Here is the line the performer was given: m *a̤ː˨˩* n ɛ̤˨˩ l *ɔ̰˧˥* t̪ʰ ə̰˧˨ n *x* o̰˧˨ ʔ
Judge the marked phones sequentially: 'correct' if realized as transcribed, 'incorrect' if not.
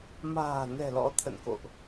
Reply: correct, correct, incorrect: k

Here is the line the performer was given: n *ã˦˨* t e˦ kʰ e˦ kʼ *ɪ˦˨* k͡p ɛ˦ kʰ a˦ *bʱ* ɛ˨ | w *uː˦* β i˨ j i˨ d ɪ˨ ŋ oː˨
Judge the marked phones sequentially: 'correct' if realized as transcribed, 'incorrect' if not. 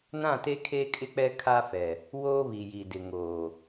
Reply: correct, incorrect: ɪ˦, incorrect: f, incorrect: oː˦

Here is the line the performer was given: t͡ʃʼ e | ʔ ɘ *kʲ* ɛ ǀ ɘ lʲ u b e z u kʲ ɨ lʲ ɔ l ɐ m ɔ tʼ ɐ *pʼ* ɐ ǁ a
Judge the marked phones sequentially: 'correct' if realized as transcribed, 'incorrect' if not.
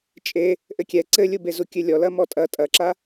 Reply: correct, incorrect: tʼ

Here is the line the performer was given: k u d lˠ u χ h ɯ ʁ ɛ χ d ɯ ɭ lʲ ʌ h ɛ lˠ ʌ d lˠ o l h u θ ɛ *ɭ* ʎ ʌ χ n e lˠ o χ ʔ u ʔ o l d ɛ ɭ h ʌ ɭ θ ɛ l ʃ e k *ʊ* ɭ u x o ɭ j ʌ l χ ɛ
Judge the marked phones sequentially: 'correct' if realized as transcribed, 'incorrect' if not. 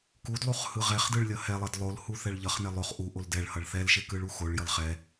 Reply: correct, incorrect: ɯ

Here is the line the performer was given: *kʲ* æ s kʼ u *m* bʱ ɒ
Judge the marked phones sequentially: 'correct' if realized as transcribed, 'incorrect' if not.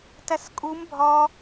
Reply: incorrect: t, correct

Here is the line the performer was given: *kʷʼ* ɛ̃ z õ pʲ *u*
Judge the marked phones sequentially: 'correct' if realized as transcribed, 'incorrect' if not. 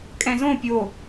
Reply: incorrect: kʼ, incorrect: o

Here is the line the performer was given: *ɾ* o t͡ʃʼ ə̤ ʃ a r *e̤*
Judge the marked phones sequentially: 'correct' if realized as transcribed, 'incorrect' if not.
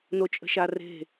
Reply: incorrect: n, correct

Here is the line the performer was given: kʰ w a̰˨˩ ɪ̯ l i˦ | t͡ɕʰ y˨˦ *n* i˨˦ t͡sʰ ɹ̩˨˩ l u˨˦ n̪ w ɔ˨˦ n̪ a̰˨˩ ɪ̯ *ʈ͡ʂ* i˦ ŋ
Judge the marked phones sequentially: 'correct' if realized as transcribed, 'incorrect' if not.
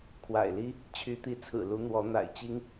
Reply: incorrect: t̪, incorrect: t͡ɕ

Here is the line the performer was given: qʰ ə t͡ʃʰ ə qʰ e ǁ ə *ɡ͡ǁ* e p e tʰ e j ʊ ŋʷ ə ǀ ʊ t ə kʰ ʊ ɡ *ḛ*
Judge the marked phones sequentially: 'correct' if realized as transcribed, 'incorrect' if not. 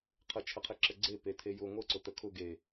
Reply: incorrect: ɡ͡ǀ, incorrect: e

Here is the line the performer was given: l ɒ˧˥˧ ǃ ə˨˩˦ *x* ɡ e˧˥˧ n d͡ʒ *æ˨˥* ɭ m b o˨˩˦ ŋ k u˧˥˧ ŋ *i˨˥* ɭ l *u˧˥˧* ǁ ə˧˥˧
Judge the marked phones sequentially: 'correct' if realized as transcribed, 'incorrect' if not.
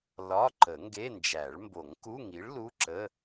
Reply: incorrect: ŋ, incorrect: æ˨˩˦, correct, correct

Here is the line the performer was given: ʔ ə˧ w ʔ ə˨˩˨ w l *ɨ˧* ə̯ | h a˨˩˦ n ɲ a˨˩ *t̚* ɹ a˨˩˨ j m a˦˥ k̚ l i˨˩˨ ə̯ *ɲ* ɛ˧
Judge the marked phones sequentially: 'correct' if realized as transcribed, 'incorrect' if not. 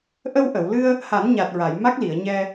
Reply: correct, correct, correct

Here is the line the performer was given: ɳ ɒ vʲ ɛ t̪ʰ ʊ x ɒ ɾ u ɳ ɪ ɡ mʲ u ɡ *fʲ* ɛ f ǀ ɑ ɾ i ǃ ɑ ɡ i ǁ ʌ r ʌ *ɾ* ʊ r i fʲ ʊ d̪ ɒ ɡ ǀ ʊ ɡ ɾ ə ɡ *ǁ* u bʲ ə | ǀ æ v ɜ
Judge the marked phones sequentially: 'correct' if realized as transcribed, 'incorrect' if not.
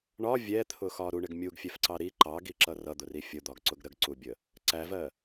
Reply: correct, incorrect: d̪, incorrect: ǀ

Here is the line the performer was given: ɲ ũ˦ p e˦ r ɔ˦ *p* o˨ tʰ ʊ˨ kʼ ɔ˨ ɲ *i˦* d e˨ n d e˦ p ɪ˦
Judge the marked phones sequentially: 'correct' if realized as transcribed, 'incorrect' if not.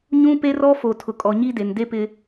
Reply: incorrect: f, correct

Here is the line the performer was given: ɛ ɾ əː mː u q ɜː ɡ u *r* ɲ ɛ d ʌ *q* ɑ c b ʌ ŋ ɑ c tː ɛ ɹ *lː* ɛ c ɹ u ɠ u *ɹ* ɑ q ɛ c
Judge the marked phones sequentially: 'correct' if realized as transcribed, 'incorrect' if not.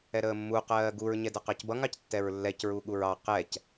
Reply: incorrect: ɹ, correct, correct, correct

